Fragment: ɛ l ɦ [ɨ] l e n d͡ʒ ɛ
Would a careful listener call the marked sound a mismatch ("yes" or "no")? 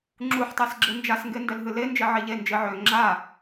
no